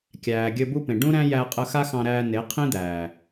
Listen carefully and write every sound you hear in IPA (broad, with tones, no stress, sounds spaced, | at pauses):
kʲ æː˨ ɡʲ ɘ˧ b u˦ p ẽ˨ ɖ ũ˦ ɾ æ̃˦ j æ˧ qʼ ə˧ x a˦ x ɑ̃˧ ɾ æː˧ n e˨˦ qʰ ĩ˦ d̪ æː˨